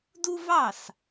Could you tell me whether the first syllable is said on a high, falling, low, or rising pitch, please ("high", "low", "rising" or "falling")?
high